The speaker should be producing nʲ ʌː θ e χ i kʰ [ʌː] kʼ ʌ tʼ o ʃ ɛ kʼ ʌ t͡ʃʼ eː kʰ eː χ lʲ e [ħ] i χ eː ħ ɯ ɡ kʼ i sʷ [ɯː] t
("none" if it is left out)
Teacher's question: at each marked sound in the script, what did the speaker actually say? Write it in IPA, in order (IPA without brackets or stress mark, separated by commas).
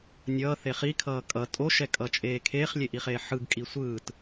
ʌː, ʔ, ɯː